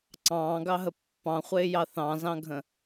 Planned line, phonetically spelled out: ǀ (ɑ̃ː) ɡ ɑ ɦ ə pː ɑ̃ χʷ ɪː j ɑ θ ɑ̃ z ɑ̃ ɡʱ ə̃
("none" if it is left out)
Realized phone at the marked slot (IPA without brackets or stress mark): ɑ̃ː